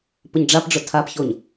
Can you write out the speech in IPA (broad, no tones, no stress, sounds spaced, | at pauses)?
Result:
p ʊ ɲ ɖ͡ʐ a p ɖ͡ʐ ʊ tʰ a p ç o ɲ